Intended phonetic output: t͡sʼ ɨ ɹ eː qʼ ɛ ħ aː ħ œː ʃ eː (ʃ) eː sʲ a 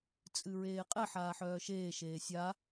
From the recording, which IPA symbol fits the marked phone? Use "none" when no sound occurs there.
ʃ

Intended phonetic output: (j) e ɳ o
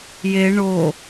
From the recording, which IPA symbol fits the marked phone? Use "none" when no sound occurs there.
j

